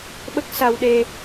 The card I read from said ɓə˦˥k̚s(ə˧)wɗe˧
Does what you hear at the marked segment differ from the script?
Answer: yes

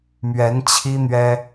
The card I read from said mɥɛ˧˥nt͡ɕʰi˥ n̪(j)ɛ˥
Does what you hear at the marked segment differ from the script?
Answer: yes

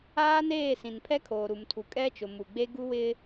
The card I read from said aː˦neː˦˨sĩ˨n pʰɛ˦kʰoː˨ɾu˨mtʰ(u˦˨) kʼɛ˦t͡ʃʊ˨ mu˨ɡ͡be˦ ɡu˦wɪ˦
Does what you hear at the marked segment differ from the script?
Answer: yes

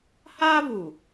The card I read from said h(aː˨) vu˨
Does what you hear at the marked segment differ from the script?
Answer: yes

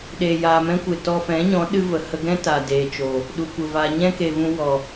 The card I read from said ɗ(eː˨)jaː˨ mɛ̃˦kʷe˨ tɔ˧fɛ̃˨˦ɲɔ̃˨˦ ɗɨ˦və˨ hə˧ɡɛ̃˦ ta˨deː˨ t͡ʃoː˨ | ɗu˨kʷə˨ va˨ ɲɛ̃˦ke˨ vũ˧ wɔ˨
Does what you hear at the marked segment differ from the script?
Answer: no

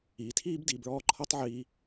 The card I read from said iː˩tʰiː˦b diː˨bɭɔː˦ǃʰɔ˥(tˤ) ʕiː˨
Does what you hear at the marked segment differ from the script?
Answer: no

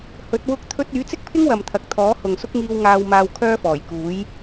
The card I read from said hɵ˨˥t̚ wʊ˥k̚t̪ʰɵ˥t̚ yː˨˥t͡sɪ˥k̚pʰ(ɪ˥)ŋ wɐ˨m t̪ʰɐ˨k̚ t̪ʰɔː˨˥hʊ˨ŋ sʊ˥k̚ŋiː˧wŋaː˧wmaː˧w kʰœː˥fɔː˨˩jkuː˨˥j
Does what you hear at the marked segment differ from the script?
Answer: no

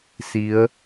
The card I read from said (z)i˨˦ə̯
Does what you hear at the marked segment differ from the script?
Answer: yes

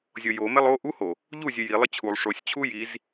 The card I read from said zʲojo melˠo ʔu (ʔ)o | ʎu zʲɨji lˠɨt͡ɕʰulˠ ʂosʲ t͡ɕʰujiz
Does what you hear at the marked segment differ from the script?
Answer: yes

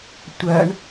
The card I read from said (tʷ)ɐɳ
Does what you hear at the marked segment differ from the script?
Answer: no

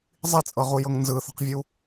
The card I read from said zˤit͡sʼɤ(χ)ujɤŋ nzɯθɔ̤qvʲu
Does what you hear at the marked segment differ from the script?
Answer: yes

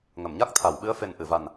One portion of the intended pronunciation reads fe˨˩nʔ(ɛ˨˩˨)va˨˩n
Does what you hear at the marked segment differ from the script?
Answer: yes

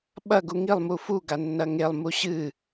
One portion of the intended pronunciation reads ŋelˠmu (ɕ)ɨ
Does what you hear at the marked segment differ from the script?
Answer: no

